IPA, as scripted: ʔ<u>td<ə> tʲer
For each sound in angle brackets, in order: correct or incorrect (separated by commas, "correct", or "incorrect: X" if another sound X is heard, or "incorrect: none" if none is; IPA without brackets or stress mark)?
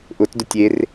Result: incorrect: ʊ, incorrect: ʊ